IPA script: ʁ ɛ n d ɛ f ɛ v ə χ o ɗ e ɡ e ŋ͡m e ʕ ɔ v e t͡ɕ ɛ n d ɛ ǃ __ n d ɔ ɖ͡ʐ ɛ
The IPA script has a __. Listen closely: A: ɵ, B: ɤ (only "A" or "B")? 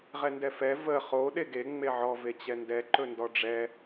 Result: A